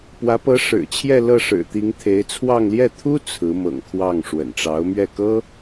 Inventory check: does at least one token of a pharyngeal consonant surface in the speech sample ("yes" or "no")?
no